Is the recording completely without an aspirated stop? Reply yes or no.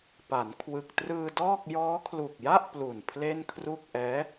no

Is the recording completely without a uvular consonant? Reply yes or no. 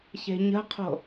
no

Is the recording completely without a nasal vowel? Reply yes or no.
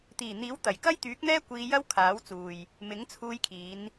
yes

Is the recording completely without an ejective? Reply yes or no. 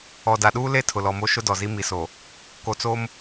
yes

